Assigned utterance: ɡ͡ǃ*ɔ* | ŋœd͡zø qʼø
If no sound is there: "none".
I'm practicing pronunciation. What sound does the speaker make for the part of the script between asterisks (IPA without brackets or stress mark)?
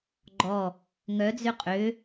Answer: ɔ